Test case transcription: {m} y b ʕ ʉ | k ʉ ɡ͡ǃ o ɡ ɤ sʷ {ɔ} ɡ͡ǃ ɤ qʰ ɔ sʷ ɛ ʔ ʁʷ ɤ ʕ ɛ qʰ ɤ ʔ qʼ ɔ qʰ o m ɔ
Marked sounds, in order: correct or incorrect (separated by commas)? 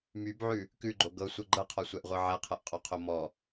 correct, incorrect